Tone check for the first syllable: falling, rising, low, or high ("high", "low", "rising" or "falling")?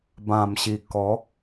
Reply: low